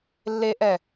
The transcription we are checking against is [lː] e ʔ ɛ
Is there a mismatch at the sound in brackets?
no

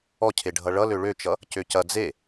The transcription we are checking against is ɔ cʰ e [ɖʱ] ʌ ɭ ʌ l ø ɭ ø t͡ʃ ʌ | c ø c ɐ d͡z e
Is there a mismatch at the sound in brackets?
no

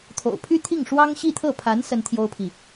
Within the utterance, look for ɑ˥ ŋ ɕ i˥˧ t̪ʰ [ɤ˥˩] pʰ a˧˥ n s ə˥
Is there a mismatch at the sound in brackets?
no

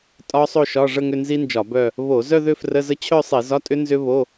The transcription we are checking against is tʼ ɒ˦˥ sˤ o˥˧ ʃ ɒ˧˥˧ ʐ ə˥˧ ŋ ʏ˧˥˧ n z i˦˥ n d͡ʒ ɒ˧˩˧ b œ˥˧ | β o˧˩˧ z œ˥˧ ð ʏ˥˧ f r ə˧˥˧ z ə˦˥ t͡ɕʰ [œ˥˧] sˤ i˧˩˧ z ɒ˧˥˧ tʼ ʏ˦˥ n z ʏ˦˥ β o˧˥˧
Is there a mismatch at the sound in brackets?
no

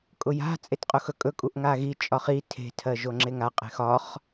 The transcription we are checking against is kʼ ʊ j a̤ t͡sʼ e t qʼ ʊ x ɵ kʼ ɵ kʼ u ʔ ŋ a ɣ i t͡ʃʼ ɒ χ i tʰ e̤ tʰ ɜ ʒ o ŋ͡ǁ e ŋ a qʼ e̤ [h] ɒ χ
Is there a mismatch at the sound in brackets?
yes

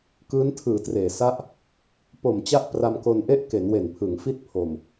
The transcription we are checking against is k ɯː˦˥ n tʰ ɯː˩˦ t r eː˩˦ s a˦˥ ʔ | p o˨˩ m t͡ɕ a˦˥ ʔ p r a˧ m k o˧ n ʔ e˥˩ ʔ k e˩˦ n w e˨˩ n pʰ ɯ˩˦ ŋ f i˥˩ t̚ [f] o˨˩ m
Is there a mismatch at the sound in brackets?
yes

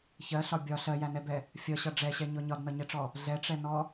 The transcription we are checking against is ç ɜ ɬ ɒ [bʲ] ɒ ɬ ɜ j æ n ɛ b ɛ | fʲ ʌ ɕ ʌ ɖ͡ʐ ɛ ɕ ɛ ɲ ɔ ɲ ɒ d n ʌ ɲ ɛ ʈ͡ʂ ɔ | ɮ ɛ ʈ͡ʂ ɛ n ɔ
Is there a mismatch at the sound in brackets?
no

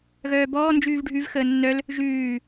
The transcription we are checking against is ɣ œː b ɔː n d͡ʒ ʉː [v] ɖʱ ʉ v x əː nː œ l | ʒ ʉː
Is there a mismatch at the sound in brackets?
no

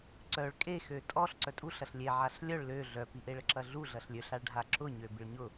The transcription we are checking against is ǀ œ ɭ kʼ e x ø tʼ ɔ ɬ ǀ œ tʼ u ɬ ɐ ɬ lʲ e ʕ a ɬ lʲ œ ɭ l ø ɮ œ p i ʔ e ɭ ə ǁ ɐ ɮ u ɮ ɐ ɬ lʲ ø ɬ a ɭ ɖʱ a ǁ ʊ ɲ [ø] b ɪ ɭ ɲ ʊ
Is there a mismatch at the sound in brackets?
no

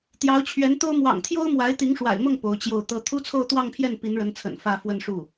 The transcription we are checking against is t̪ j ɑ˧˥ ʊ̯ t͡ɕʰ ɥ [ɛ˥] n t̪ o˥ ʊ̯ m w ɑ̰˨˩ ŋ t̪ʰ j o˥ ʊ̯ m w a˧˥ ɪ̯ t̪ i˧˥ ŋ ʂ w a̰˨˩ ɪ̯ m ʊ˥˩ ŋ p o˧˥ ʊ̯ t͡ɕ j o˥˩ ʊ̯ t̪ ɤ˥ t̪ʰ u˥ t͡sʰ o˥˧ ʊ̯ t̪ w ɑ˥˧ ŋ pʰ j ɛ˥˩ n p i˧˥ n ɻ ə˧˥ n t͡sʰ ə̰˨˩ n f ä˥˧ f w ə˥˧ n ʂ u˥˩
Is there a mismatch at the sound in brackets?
yes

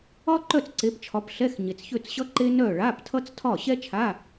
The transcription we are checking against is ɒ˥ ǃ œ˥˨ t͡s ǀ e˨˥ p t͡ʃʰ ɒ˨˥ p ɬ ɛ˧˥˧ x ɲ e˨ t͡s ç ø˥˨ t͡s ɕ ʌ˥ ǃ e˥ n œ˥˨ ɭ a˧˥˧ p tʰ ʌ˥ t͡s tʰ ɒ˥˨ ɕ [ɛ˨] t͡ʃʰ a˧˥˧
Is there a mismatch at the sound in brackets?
yes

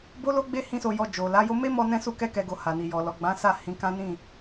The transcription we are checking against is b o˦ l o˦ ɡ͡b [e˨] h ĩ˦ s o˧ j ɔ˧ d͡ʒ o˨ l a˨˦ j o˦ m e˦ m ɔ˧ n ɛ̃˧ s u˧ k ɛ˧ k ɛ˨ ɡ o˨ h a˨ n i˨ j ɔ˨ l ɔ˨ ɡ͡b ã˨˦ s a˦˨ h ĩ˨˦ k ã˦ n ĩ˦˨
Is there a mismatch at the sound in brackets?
yes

